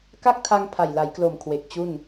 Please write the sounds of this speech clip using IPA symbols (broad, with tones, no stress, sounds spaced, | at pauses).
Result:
k a˥˩ k̚ tʰ a˧ ŋ pʰ a˨˩ j l a˩˦ j k l o˨˩ m kʰ w e˨˩ k̚ t͡ɕ u˥˩ n